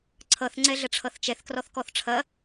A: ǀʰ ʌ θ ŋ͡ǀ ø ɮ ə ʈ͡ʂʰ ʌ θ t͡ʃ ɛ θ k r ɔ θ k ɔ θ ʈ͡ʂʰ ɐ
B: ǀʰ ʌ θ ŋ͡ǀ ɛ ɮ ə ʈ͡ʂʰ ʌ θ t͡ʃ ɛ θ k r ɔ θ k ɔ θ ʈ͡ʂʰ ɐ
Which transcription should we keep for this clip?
B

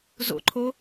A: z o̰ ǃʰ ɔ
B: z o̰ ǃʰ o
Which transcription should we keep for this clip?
B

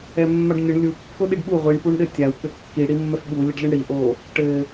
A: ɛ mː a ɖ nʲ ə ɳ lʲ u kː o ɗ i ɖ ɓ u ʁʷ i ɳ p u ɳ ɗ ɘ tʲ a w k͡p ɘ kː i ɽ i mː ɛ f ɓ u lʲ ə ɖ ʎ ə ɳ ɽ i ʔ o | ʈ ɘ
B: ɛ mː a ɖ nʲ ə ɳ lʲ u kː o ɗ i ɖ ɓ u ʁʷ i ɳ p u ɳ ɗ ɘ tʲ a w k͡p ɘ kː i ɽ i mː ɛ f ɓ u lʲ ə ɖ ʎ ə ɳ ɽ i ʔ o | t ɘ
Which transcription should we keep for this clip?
A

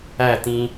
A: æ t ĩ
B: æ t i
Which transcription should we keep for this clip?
A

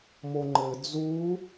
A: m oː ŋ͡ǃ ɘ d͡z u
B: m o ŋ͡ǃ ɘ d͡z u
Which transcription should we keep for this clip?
B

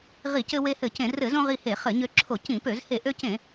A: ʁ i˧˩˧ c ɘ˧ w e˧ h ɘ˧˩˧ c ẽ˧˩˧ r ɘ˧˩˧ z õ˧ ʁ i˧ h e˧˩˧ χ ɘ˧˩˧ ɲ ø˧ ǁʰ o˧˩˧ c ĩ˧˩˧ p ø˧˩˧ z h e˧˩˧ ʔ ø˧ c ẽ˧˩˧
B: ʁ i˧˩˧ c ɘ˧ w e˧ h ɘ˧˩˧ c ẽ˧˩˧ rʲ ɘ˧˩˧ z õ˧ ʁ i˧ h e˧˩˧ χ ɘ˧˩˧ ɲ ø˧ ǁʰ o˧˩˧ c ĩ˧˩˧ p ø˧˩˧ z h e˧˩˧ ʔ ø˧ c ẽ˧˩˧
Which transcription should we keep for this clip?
A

